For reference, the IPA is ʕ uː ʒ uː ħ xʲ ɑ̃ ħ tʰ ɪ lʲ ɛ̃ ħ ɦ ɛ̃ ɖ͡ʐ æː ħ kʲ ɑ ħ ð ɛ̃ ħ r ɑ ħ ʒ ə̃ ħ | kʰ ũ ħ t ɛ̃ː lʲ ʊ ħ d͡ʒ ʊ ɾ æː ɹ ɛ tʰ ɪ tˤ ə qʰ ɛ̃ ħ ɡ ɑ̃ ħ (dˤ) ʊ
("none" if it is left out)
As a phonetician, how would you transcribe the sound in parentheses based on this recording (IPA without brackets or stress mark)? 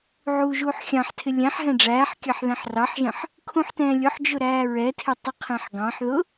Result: ð